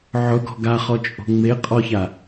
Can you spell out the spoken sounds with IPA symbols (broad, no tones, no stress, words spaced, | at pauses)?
ʕʊɡɔ̤ ɡaχɔt͡ʃʼo̤ ŋ͡me qʼɔça